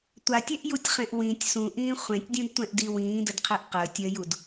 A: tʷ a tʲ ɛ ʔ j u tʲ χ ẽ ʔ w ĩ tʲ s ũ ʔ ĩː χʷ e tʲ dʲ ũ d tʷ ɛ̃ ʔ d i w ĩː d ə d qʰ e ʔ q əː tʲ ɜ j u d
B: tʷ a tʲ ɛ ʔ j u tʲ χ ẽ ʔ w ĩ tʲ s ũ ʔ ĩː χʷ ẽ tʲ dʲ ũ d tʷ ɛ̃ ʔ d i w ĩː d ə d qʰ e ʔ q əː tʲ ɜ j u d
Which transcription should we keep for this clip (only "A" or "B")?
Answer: B